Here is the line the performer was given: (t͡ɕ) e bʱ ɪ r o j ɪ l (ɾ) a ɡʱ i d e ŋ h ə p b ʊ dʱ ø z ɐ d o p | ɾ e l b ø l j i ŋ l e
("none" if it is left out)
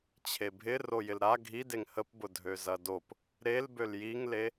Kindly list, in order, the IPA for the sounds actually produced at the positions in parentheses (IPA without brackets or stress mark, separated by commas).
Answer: t͡ɕʰ, ɾ